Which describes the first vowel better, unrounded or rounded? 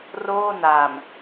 rounded